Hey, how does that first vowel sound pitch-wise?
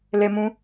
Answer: high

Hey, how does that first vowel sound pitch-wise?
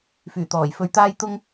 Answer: low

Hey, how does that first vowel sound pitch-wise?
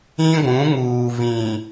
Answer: high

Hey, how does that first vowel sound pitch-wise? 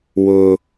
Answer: high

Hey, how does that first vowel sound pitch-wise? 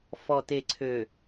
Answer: low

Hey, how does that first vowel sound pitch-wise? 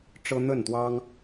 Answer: high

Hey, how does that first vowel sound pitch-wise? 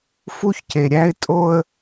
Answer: high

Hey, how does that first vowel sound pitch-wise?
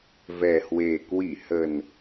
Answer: low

